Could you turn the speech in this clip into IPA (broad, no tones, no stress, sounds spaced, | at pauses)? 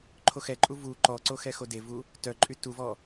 ǃʰ o x ɛ ǃʼ u v u ǃ ɔ ǀ o x ɛ x o d e v u | t œ ǃʼ y t u v ɔ